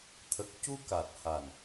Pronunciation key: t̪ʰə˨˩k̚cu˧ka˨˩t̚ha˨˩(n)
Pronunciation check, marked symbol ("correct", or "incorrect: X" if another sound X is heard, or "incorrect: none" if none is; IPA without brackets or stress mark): correct